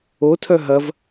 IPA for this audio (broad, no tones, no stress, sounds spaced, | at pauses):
o tʰ œ ɦ ɐ v